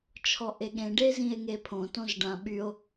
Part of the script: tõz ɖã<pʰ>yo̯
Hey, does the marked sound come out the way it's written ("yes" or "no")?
no